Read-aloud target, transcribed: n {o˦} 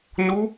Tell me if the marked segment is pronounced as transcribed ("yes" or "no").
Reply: no